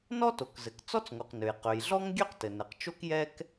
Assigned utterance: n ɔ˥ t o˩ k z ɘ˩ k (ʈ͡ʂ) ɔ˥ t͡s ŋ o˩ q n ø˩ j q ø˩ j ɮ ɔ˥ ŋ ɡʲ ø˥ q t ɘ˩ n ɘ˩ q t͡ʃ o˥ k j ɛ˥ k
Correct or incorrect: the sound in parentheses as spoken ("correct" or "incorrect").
incorrect